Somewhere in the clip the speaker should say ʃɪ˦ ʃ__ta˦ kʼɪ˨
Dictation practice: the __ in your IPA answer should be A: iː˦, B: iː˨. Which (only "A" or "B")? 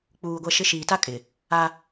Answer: B